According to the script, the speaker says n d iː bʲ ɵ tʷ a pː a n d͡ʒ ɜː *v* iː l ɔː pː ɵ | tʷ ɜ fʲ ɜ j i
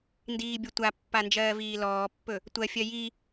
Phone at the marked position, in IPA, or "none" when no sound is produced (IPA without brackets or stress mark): v